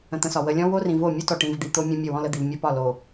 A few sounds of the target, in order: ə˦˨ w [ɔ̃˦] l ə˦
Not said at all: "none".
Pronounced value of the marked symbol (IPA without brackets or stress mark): ɔ̃˦